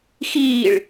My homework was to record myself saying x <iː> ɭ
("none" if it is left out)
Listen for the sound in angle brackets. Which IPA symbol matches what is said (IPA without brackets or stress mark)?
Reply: iː